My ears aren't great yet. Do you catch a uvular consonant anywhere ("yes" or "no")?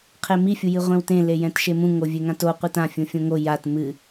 yes